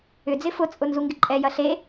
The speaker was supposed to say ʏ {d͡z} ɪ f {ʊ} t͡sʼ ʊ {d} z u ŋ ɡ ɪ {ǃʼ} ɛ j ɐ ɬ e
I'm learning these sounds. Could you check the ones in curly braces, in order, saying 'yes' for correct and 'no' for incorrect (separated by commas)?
yes, yes, no, yes